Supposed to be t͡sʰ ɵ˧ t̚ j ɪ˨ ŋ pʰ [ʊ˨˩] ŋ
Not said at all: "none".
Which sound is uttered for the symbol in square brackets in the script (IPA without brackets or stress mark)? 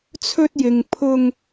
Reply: ʊ˧